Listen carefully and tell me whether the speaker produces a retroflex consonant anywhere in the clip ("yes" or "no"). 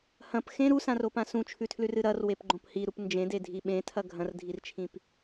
no